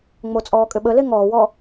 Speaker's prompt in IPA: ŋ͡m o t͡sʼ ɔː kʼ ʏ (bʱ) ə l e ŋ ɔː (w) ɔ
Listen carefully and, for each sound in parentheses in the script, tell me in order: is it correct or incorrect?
incorrect, correct

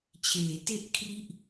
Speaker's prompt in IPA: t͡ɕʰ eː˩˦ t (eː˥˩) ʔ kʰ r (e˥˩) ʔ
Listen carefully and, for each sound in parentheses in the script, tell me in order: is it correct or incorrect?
incorrect, incorrect

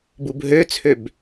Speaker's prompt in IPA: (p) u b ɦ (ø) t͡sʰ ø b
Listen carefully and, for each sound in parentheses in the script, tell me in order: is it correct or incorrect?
incorrect, correct

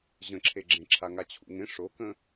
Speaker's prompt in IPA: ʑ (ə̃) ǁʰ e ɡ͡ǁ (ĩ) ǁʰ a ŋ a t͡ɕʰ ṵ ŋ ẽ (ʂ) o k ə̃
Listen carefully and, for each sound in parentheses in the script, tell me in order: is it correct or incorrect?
correct, incorrect, correct

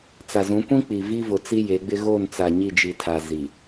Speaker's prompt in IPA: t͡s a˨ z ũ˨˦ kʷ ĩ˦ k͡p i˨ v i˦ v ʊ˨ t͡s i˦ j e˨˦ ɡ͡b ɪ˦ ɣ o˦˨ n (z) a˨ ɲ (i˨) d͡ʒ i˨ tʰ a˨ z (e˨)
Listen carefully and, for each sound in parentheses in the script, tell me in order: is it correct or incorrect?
incorrect, incorrect, incorrect

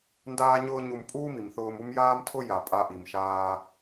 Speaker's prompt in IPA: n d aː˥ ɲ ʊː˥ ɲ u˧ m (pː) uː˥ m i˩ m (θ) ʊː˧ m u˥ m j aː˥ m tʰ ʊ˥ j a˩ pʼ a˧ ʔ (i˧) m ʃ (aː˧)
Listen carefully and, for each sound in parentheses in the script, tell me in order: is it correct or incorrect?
incorrect, correct, incorrect, correct

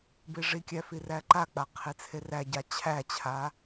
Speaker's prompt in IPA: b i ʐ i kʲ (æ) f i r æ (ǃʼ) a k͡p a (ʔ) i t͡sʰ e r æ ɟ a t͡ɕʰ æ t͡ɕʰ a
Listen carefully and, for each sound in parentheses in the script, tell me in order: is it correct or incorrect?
correct, incorrect, incorrect

